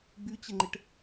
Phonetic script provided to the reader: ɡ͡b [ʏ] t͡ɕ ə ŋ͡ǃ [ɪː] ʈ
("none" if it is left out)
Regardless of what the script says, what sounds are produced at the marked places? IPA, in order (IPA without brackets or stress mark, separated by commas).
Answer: y, ɪ